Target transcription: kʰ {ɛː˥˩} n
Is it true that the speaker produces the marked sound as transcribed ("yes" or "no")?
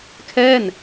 yes